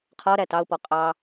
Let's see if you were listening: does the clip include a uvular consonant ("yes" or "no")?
yes